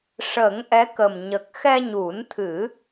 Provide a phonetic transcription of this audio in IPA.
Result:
ʂ ə˨˩˦ ŋ ʔ ɛ˧˥ k ə˨˩ m ɲ ə˨˩ k̚ x ɛ˧ ɲ u˨˩˦ n t̪ʰ ɨ˨˩˦

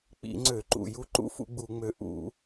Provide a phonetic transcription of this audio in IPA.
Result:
k͡p ḭ˧˩˧ ŋ͡ǀ ø˧˩˧ ǃ ṵ˨˩ j u˧ ǃ ṵ˦˥ f ṵ˧ ɡ͡b u˧˩˧ ŋ͡m ø˨˩ ʔ ṵ˧˩˧

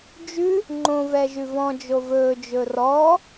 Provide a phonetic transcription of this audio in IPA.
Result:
d͡ʒ ʉ | ŋ͡ǃ õ v ɛ ʒ ʉ v ɔ̃ d͡ʒ o v ɵː d͡ʒ ɵ r ɔ

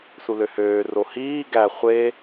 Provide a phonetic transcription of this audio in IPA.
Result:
s u l ø h øː r o h iː ɡ æ χʷ e

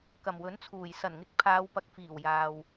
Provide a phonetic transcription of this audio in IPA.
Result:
k ɐ˨˩ m w ɵ˨˥ n t͡sʰ uː˨˩ j s ɐ˨˩ n ŋ ɪ˨˥ k̚ pʰ aː˨˧ w p ɐ˨ k̚ f iː˨˩ w j aː˨ w

